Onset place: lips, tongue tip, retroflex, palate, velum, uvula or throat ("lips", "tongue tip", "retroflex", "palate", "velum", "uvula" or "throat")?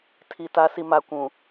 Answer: tongue tip